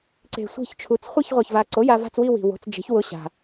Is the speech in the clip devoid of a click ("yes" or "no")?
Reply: no